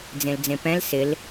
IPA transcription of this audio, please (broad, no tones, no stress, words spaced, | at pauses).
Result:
d͡zẽld͡zẽpɛ̃l sɪl